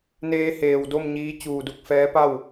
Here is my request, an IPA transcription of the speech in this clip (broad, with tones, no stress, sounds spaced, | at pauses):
n eː˧ h eː˩ w d o˥˨ m ɲ iː˧ t͡ɕ uː˧˩ d u˥˨ k̚ f ɛː˧˥ p a˥˨ w